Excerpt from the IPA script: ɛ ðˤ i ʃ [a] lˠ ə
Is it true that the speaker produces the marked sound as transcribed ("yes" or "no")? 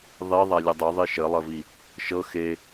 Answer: no